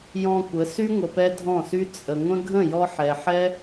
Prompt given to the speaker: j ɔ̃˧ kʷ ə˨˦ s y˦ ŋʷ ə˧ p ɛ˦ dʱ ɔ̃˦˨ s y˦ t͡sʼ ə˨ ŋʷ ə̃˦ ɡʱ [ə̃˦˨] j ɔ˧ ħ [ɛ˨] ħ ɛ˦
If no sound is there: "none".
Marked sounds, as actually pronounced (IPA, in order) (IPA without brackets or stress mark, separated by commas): ə̃˦˨, ɛ˨